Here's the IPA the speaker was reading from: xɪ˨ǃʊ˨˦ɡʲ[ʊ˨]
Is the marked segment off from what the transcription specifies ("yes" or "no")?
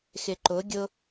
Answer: yes